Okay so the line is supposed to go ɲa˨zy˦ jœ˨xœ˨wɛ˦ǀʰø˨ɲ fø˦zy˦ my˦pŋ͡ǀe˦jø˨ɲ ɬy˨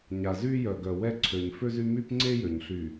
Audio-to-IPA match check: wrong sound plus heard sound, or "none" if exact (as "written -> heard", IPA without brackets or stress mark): x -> ɡ